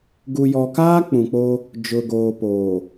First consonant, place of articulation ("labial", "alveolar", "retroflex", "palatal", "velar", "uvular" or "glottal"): velar